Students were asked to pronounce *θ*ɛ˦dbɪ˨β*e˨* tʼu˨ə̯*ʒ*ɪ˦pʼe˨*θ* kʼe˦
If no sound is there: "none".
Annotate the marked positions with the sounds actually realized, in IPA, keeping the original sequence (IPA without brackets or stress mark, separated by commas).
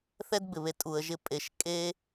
θ, e˨, ʒ, ʃ